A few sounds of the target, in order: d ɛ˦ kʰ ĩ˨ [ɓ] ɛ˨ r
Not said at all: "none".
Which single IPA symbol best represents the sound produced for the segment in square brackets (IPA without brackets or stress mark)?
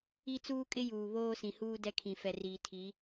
f